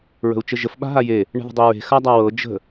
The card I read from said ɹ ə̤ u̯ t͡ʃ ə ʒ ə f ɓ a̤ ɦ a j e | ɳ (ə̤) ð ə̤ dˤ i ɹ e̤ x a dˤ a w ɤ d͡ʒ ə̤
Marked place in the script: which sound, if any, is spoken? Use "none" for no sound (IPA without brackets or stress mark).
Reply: ə̤